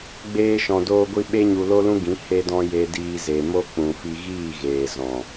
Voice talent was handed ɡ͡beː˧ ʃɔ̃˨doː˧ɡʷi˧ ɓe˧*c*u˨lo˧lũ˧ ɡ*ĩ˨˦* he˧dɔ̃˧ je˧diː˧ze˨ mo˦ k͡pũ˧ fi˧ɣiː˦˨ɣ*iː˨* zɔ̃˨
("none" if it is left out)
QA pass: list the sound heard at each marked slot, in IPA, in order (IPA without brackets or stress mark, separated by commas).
ɲ, ĩ˨˦, eː˨